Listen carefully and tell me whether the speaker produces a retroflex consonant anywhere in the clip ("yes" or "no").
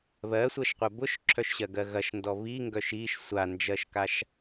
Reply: no